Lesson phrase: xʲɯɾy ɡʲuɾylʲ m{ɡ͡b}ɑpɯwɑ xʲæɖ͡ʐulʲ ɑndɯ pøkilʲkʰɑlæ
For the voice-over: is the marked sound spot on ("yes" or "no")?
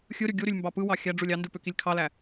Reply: no